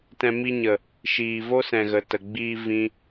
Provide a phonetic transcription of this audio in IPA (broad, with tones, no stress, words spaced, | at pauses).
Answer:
tɛ̃˧ mi˧ɲə˨ | ʃiː˨vo˦sɛ̃˨ ɣə˨tə˨ɡ͡biː˧ vĩ˦